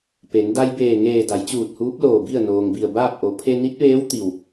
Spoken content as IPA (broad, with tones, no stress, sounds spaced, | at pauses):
p e˩˧ n d a˧ j b eː˧˩ ŋ eː˧˩ d a˩˧ j t͡ɕ uː˧˩ t̚ h uː˧˥ p̚ l oː˧˩ b i˥˨ ə̯ n oː˩ ŋ b i˧˩ ə̯ b aː˥˨ p̚ ʔ o˩˧ pʰ e˧ n i˧˥ t̚ ʋ eː˧˥ w t̪ i˧˩ w